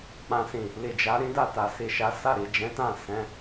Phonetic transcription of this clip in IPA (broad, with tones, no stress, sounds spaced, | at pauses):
k͡p ã˨ s ĩ˨ | l i˨ d͡ʒ a˨˦ ɾ ĩ˦ d a˦˨ t a˨ s i˨ ʃ a˨˦ s a˦˨ ɾ i˨ d͡ʒ ɛ̃˨˦ t ã˦˨ s ɛ̃˨˦